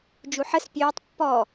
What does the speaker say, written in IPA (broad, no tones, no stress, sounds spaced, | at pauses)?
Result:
d͡ʒ u ħ ə s pʲ øː tˤ pː ɔ